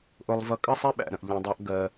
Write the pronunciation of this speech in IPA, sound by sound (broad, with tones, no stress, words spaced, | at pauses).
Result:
ʔʊ˧lˠvʌ˧kʼə˥sˤɛ˥ ɓæ̰˩ɾə̃˩ʔ ʎɛ̃˩dˤɑ˧ʔɡɜ˩